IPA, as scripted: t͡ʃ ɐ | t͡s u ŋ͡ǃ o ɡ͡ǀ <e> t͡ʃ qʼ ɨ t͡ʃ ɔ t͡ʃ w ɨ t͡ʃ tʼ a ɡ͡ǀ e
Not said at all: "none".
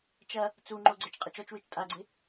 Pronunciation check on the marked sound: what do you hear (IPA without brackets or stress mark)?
ɛ